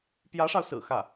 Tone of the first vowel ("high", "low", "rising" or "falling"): rising